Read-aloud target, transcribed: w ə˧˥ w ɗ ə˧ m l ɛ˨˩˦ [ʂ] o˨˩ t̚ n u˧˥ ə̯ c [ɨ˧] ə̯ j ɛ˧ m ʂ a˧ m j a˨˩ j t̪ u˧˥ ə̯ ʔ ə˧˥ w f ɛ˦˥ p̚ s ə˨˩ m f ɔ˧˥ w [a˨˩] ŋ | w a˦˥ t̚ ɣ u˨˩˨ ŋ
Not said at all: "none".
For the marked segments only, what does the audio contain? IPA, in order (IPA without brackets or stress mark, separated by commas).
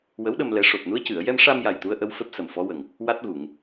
ʂ, ɨ˨˩˨, ə˨˩